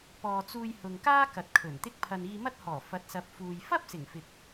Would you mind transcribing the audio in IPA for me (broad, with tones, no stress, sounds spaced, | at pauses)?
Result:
p ɔː˨ t͡s uː˧ j h ʊ˨ ŋ k aː˥ k ɐ˨ t̚ kʰ ɵ˨˩ n t̪ ɪ˥ k̚ pʰ ɐ˧ n iː˧ m ɐ˥ t̚ h ɔː˨˩ f ɐ˨˥ t̚ s ɐ˨˥ p̚ f uː˨ j f ɐ˥ p̚ s ɪ˨˩ ŋ f ɪ˨ k̚